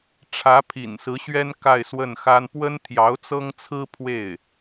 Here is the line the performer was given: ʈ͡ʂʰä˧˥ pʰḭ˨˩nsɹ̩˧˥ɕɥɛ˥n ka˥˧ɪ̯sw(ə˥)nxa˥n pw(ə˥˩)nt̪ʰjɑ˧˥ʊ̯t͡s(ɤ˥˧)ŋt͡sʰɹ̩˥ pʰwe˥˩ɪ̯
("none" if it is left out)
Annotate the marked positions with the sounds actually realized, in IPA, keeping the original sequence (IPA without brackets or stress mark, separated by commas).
ə˥˩, ə˥, ɤ˥